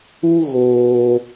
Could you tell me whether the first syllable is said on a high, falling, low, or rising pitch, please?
high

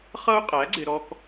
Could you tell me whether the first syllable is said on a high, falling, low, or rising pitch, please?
high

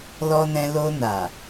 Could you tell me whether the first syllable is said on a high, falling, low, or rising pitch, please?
high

